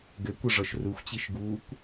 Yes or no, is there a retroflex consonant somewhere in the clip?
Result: yes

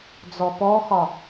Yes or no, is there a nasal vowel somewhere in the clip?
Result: no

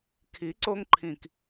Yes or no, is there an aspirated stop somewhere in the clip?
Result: yes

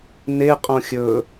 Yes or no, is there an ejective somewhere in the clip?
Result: yes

